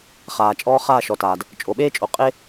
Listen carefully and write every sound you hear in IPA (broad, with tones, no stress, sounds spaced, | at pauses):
χ aː˨ t͡ʃʼ ɔː˦ χ aː˦˨ ʃ ɔ˨ t aː˨ d | t͡ʃʼ o˨ ɓ eː˦ t͡ʃʼ o˨˦ qʼ e˦